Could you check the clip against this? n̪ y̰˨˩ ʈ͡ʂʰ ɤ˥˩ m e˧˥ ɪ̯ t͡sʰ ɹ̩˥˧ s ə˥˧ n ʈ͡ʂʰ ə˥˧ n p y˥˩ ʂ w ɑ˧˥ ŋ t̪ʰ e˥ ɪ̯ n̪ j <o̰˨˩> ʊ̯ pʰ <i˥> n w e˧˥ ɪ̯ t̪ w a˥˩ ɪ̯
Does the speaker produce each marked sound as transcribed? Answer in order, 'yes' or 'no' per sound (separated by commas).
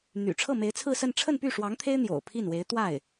yes, no